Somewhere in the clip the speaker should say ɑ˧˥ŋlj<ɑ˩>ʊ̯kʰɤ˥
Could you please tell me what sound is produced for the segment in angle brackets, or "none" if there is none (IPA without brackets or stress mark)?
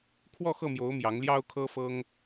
ɑ˥